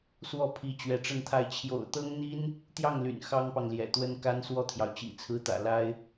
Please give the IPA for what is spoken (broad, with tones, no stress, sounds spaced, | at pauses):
s w ɔ˥˩ pʰ i˧˥ t͡ɕ ɥ ɛ˧˥ ʈ͡ʂ ə˥˧ n t̪ʰ a˥˩ ɪ̯ t͡ɕʰ j o̰˨˩ ʊ̯ t̪ ɤ˥ ŋ n̪ i˥ n | t̪ j ɑ˥˩ ŋ l y̰˨˩ n x ɑ˥ ŋ p ɑ˨ ŋ l j ɛ̰˨˩ t̪ w ə˥ n k a˥ n s w ɔ˥˩ t̪ʰ j ɑ˩ ʊ̯ t͡ɕ ḭ˨˩ t͡sʰ ɹ̩˧˥ t̪ ä̰˨˩ l a˥ ɪ̯